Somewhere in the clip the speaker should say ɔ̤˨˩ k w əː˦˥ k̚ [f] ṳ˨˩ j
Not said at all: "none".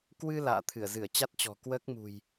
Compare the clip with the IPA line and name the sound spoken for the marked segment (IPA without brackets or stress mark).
m